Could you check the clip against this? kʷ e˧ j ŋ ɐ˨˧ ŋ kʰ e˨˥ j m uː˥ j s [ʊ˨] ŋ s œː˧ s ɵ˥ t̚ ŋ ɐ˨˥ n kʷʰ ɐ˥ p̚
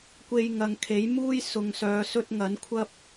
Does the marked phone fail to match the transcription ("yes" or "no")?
no